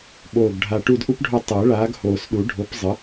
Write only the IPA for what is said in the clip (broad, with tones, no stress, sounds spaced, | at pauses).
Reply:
ɓ oː˨˩ ɡ ɖʱ a˨˩ ʈ u˦˨ d ʔ u˥ p ɖʱ o˦˨ tˤ əː˨˩˦ ɭ aː˨˦ ɡ h oː˨˩ s ɗ u˨˩˦ ɖʱ o˨˦ p zˤ ə˨˦